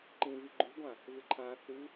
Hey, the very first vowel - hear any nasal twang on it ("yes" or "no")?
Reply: yes